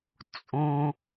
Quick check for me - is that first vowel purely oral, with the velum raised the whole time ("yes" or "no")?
no